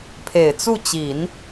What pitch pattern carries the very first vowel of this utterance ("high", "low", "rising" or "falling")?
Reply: low